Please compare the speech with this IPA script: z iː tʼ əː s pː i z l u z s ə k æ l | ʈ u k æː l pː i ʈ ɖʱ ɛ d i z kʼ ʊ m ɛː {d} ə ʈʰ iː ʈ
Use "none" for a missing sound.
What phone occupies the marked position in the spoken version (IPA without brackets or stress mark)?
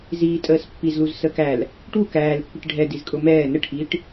n